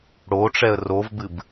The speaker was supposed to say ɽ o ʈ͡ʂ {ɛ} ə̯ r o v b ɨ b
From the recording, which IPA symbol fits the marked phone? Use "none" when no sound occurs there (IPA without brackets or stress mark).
ɛ